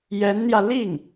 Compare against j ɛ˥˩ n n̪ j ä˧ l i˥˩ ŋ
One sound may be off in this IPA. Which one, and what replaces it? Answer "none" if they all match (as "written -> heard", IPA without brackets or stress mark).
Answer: ɛ˥˩ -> ɛ˧˥